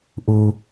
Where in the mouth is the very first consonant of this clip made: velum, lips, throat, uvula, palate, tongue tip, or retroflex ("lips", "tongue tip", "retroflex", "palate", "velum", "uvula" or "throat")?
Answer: throat